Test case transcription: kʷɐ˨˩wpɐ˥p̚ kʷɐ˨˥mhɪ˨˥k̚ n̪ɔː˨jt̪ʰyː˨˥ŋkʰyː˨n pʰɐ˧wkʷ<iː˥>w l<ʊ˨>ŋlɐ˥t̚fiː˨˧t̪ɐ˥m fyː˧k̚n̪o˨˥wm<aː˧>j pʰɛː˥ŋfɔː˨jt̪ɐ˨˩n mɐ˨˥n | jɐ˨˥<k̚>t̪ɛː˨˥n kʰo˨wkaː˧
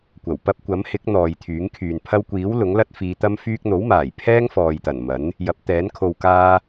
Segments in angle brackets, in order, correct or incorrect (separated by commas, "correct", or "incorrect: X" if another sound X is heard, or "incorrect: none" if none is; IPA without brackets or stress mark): incorrect: iː˨˥, incorrect: ʊ˨˥, incorrect: aː˨˩, incorrect: p̚